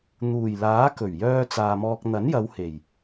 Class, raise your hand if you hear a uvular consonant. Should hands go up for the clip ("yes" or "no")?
no